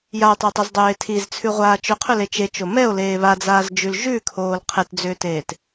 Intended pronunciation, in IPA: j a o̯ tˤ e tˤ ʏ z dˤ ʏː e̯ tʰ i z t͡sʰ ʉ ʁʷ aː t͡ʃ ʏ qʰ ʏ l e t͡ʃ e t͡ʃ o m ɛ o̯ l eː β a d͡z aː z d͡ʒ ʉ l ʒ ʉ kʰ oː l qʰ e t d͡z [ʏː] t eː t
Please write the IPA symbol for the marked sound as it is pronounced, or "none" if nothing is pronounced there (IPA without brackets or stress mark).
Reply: ʏː